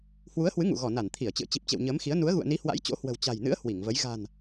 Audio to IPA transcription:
h w u˨˦ ə̯ h w ɨ˨˦ ŋ ṵ˧˨ ɣ ɔ˧˩ n a˧˩ n t̪ʰ i˧˩ ə̯ t͡ɕ ɨ̰˧˨ ə̯ t͡ɕ i˨˩ p̚ t͡ɕ ḛ˧˨ w ɲ əː˨˦ m x i˨˦ ə̯ n u˨˦ ə̯ ɣ ṵ˧˨ ə̯ n i˨˦ h w a̰˧˥ j t͡ɕ o̰˧˥ h w ə̤˨˩ w t͡ɕ a̤˨˩ j n ɨ̰˧˥ ə̯ h w i˧˩ ŋ v ə˨˦ j ɣ a̤˨˩ n

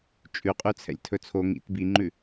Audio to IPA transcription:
t͡ʃʼ ʉ qʼ ʉ t͡sʰ ɛ̰ lʲ tʰ ɵ t͡sʰ o ŋ ḭ t b i ŋ͡ǃ ʉ

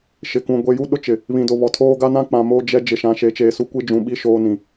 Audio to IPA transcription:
ʃ ɪ˨ k ũ˨ ɡʷ e˨ j u˦ ɗ ʊ˦ t͡ʃ ɪ˨ | β ĩ˨ d o˨ β ɔ˨ tʰ oː˦ ɡ a˦ n ã˦ k͡p ã˨ m o˦ d͡ʒ ɛ˦ d͡ʒ ɪ˨ ʃ ã˨ ʃ e˨˦ t͡ʃ eː˨ s u˦ kʷ i˦ d͡ʒ ũ˨ ɓ i˦ ʃ oː˦ n ĩ˨

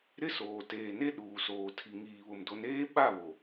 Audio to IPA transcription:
ɾ ɪ˦ s oː˨ t eː˨ n e˦ ɗ uː˨ s oː˨ tʰ i˨ ŋ iː˨ β ʊ˨ m d o˨˦ n eː˦ ɓ a˦˨ β o˨

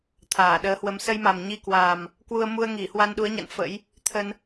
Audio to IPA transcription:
t̪ʰ aː˧˩ ɗ əː˨˦ h w ə˨˦ m s ə˧ j m a˨˩ m ɲ i˧ k w a˨˩ m | k w u˧ ə̯ m u˧ ə̯ ŋ i˧˩ h w a˧ n ɗ u˨˦ ə̯ ɲ a̰˧˨ n f ə̰˧˥ j | t̪ʰ ə˧ n

